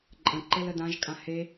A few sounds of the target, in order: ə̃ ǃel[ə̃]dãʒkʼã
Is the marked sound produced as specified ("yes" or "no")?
no